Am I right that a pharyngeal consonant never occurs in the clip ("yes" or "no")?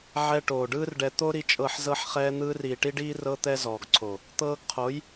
no